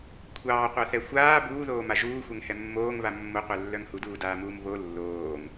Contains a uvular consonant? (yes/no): yes